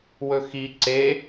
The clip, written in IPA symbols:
w ɵ x i ǀ e

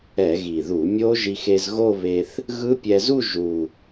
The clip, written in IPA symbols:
ɛ˧˩˧ ɣ i˨˩ ð u˧˩˧ mʲ o˦˥ ʒ i˧ x e˧ z ɣ o˥˧ β e˧ θ | ɣ ɯ˦˥ pʲ ɛ˧ z u˥˧ ʒ u˨˩

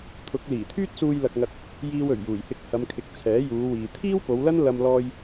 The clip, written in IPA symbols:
t̪ʰ ʊ˨˥ k̚ l iː˨˩ t̪ʰ yː˥ t̚ s uː˧ j l ɐ˧ k̚ ŋ ɐ˧ t̚ | j iː˧ w ɵ˨˩ ɥ j uː˨˩ j h ɪ˧ k̚ h ɐ˨˧ m kʰ ɪ˨ k̚ t͡sʰ ɛː˨˥ j uː˨˧ w iː˨ t̪ʰ iː˥ w p o˨˧ w l ɐ˥ n l ɐ˧ m l ɔː˧ j

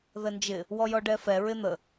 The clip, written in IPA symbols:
ð ə n d͡ʒ ɪ | w ɔ j ɔ ɖ ɛ f ɛ ɹ ɪ n̪ ə

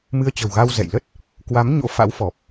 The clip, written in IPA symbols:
m ɨ˧ ə̯ t͡ɕ ə̤˨˩ w ɣ a˧ w z ɛ̰˧˨ j l ə˦˥ t̚ | k w a˨˦ m ɲ o̰˧˥ f a̰˧˥ w f ɔ˨˩ p̚

